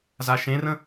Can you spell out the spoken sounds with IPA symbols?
z a ʃ ẽ r ə̃

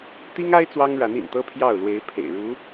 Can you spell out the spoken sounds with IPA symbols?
t̪ i˥ ŋ a˥ ɪ̯ t͡s w ɑ˥ ŋ ɻ a˧˥ n ḭ˨˩ n t̪ ɤ˥ pʰ j ɑ˥˩ ʊ̯ l w e˧˥ ɪ̯ pʰ ḛ˨˩ ɪ̯ ɻ u˧˥

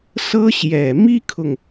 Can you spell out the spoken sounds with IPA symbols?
s ɤ˥ ɕ j ɛ˨˩ m i˥ kʰ ʊ˨ ŋ

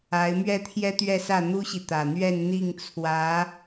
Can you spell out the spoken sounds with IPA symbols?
a˧˥ ɪ̯ m ɥ ɛ˥˩ t̪ʰ j ɛ˥ t̪ ɥ ɛ˥˧ s ä˥˩ n̪ u˥ ɕ i˨ t̪ ä˨˩ n̪ ɥ ɛ˥˧ n n̪ i˥˩ ŋ t͡sʰ w ä˧˥

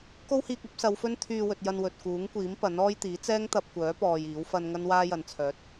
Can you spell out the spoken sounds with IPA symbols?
k o˥ w h iː˧ k̚ ɐ˨˥ p̚ s ɐ˨˧ w f ɵ˥ n t̪ʰ yː˧ w ɵ˨ t̚ j ɐ˧ n w ɵ˨ t̚ k uː˨˥ ŋ kʷ iː˨˥ m p ɐ˨˥ n ɔː˥ j t̪ iː˨˥ t͡s ɛː˥ ŋ t̪ ɐ˧ p̚ kʷ œː˨˥ p ɔː˧ j iː˨˥ w f ɐ˥ n ŋ ɐ˥ n w aː˥ j ɐ˨ n t͡sʰ œː˨˥ t̚

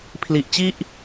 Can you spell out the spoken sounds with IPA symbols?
pʰ l i˨˩ ʔ t͡ɕ i˥˩ ʔ

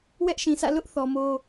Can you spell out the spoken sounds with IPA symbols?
w ɛ˦ ʔ ʃ ĩ˨ sʰ ä̰˦˨ l ʊ˦ ʔ θ ɔ˨ m o˦

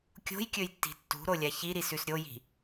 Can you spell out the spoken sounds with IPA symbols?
kʲ o̤ j kʲ ɵ j tː i̤ tː ṳ ɾ o lʲ a ç i ɾ i s ʉ s ɾʲ o j i̤

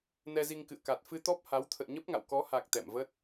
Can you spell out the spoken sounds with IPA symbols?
n ɛ˧ z i˧ ŋ k ɨ̰˧˨ ə̯ k a˨˩ t̚ f ɨ˧ t̪ ɔ˦˥ p̚ h a˨˦ w t̪ʰ ə̰ː˧˨ ɲ ə˦˥ p̚ ŋ a̰˧˨ w k ɔ˨˦ h a˨˩ k̚ t̪ ɛ̰˧˨ m v ə˦˥ t̚

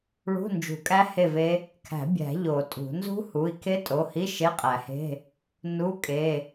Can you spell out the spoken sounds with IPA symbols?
ɭ ṳ˧˥˧ n d͡ʒ ṳ˨˩˦ kʼ æ˦˥ h e˥˨ v e˦˥ | kʰ æ̤˨˩˦ bʲ æ̤˨˩˦ ʎ o˨˩˦ tʼ ṳ˨˩˦ n z ṳ˦˥ h u˩˧˩ i̯ kʰ e˦˥ tʼ o˩˧˩ h i˧˥˧ ʃ e˧˥˧ qʼ æ˨˩˦ h e̤˧˥˧ | n u˧˥˧ kʼ e˩˧˩

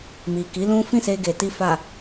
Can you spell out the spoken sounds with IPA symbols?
m i˨ k i˨˦ l ũ˦ f ĩ˦˨ s e˧ ɡ e˨ t i˧ f a˨

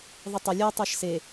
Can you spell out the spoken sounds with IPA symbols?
ðˤ e tˤ ɤ lʲ ɤ tˤ ɤ ʃ s e

